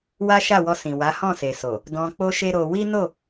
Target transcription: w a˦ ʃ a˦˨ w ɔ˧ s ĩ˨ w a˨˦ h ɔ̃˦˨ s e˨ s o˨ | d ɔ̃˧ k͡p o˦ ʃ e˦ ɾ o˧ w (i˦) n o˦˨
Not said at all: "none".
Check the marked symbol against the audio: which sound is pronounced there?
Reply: i˦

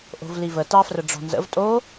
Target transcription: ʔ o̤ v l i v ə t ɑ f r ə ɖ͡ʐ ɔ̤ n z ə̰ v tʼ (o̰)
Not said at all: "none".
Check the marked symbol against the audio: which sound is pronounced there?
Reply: o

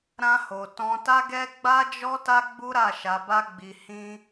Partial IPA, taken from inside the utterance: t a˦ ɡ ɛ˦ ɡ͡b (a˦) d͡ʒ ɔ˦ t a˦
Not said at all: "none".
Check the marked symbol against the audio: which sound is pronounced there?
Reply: a˦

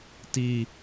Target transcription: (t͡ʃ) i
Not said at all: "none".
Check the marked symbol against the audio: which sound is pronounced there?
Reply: t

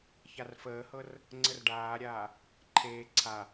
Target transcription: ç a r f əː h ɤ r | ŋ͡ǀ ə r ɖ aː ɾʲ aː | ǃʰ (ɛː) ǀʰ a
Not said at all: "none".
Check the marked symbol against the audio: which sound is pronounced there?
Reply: eː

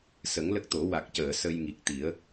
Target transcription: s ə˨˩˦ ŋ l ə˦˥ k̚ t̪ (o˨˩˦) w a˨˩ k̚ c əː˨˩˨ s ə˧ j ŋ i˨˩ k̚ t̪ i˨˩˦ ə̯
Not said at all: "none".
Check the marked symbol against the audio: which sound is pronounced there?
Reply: o˨˩˦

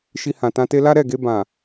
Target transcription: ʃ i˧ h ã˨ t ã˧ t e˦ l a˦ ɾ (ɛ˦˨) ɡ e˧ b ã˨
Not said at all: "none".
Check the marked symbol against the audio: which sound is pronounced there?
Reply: ɛ˦˨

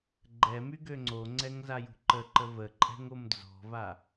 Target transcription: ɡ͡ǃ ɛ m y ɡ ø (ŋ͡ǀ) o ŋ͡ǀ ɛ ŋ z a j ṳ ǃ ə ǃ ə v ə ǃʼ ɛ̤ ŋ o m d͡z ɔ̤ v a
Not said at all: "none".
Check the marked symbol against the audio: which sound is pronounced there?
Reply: ŋ͡ǀ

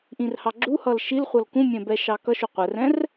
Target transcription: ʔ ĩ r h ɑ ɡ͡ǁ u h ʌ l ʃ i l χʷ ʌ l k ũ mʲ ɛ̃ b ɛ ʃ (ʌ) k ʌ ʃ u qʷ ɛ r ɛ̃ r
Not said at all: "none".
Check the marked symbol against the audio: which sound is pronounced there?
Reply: ɑ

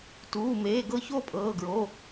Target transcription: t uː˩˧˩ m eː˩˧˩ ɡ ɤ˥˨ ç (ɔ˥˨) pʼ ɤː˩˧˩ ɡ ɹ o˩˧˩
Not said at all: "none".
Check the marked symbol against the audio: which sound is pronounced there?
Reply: o˥˨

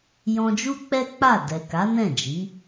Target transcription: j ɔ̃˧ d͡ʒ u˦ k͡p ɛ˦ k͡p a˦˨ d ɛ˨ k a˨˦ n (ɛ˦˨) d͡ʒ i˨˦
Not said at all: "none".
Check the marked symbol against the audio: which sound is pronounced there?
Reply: ɛ̃˦˨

